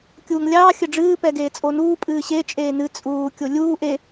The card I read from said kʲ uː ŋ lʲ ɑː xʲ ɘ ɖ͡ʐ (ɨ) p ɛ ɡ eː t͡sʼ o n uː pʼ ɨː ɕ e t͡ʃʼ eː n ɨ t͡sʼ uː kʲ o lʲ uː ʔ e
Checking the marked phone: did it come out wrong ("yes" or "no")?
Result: yes